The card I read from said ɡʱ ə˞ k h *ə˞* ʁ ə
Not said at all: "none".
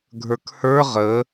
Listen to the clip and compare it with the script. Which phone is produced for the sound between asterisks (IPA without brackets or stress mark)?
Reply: ə˞